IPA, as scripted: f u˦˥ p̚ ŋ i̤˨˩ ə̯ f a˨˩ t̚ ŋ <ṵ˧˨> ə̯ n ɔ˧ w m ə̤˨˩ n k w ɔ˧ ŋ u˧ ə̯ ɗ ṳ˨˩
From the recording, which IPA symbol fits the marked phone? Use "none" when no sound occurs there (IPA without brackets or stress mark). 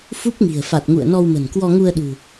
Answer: ṵ˧˨